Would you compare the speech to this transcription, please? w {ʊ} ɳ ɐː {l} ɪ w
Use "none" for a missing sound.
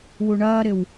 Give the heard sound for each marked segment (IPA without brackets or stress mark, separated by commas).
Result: u, ɾ